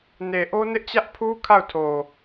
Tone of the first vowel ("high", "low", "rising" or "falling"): low